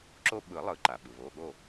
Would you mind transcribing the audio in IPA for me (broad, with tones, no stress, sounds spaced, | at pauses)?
ǁ o˦ ɓ ɯ˨˩˦ lˠ ɯ˨˩˦ ǃ a˩ ɓ ɯ˩ β o˩˧˩ ɠ o˥˨